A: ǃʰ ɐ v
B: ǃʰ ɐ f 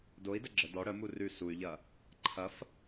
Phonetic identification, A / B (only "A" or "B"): B